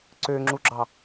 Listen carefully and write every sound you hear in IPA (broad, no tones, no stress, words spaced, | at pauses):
ǀøŋ͡ǁuɡ͡ǁɑ